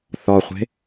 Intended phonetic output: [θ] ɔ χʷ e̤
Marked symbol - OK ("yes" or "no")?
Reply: yes